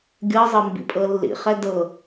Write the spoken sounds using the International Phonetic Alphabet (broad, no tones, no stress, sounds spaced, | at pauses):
ɡʲ ɤ zˤ ɤ m b ḭ pʼ ɤ lː ḭ χ ɛ d ɤ